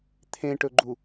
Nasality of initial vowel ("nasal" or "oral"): nasal